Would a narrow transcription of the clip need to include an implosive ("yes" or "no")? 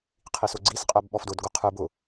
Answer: yes